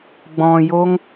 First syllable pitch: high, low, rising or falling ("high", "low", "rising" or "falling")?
low